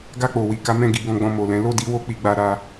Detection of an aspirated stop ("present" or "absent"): absent